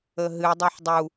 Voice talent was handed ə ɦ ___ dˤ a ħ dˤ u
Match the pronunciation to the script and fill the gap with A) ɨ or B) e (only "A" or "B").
A